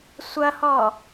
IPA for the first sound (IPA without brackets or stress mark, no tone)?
sʷ